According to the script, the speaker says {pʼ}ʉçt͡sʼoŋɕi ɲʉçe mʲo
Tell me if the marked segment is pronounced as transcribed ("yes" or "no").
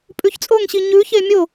yes